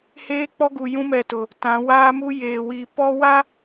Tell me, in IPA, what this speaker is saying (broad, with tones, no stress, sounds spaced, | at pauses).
h eː˦ k͡p ɔ˦ ɡ u˨ j ũ˦ m ɛ˨ t ʊ˨ | t ã˨˦ w aː˦ m u˦ j eː˨ w i˨ p ɔ˦ w a˦